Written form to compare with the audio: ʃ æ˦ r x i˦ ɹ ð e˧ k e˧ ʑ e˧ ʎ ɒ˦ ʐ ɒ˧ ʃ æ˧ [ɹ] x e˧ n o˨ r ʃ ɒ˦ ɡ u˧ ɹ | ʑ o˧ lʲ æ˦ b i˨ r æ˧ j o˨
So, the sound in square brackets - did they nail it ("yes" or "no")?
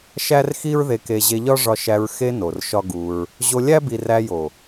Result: yes